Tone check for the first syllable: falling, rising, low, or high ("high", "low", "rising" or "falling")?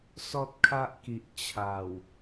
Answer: high